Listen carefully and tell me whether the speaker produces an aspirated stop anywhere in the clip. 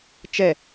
no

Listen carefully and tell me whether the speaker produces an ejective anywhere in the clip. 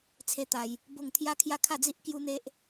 no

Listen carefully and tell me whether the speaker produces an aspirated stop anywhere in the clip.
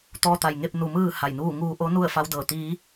no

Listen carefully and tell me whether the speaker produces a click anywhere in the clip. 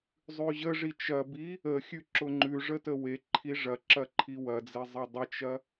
yes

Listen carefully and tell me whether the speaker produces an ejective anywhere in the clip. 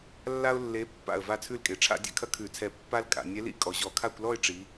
yes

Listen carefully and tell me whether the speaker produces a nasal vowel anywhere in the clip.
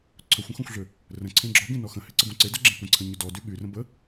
yes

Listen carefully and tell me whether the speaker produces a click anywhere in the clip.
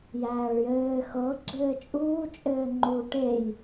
yes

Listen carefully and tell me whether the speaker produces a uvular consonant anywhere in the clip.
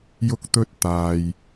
no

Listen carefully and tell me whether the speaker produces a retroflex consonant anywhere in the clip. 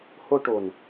yes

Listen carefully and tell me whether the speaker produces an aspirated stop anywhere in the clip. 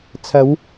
yes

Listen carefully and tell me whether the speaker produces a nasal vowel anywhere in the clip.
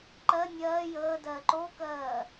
no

